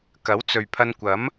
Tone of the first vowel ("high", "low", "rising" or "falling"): rising